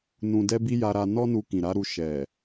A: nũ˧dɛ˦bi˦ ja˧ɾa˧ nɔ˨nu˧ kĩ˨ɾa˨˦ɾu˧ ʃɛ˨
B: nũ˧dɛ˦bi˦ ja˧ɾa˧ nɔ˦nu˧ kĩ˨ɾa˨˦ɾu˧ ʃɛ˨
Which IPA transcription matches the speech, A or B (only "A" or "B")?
B